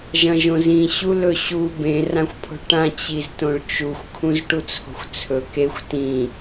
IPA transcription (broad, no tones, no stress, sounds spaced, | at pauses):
ʒ ɐ̃ ʒ õ z ĩ ɕ u l ɵ ɕ u b ẽ r ã xʷ pʰ o̤ ɭ ʈ ã t͡ɕ i z t õ ɭ t͡ʃ u xʷ kʰ ũ z ʈ u t͡sʰ o̤ xʷ t͡sʰ ɵ k e xʷ t ĩ